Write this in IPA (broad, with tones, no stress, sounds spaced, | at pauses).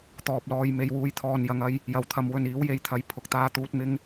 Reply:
t̪ ɔː˨ p̚ l ɔː˨ j m e˨ j w uː˨ j t̪ʰ ɔː˨ n j ɐ˨˧ ŋ ɐ˧ j | j ɐ˨ w t̪ʰ ɐ˨˧ m w ɵ˨ n iː˨˥ w j e˨ j t̪ʰ ɐ˨˧ j pʰ ʊ˨ k̚ t̪ aː˧ t̪ uː˧ t̚ m ɪ˧ ŋ